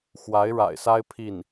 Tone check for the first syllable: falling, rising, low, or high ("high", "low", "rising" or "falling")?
rising